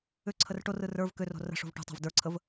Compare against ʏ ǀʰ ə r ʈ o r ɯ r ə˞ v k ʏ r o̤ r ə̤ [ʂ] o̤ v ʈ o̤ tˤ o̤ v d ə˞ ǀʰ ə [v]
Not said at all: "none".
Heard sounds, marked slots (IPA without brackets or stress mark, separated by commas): ʂ, v